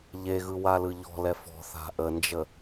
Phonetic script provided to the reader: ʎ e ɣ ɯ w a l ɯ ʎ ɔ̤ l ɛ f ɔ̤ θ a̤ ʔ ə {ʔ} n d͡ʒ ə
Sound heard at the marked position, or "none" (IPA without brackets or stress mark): none